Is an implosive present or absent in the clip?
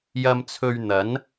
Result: absent